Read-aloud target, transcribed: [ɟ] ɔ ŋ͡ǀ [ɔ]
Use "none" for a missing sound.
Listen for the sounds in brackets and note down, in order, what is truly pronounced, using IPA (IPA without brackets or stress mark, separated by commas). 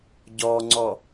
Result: ɟ, ɔ